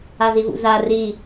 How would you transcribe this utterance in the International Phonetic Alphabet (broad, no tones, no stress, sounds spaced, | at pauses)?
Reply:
a z i v ṵ z a r i